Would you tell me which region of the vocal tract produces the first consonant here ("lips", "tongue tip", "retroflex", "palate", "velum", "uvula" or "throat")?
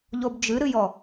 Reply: palate